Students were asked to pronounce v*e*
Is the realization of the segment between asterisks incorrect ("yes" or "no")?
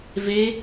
no